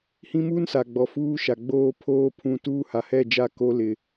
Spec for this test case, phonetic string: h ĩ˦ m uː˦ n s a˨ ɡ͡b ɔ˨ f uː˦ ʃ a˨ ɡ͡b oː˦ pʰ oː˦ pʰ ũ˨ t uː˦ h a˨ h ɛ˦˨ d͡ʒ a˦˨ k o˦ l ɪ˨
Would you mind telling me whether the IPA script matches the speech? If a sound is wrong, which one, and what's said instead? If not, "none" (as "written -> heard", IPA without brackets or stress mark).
none